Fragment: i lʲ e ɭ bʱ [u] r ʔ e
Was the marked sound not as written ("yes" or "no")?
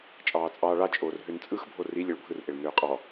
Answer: yes